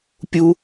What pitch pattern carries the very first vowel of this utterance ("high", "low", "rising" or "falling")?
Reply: high